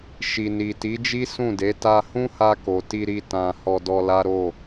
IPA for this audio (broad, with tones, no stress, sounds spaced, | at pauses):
ʃ i˨ n i˨ t i˨˦ d͡ʒ i˦ s ũ˦˨ d e˨˦ t a˧ h ũ˦ h a˧ k o˨ t i˧ ɾ i˧ t ã˨ h ɔ˧ d ɔ˧ l a˦ ɾ o˦˨